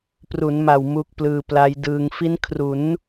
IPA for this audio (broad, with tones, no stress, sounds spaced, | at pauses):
p r u˩˦ n m a˨˩ w m u˦˥ k̚ p l ɯː˧ p l a˦˥ j d ɯː˧ ŋ f i˦˥ n kʰ r u˩˦ n